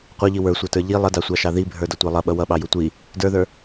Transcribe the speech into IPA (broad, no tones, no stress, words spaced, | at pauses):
qʷʌʎi wə˞sʷɑtə˞ ʎi lˠʌdɑsʷɑʃɑ ðibʱə˞dʌtʷɑ lˠʌɓʌ wʌɓɑju tʷi | də˞ðə˞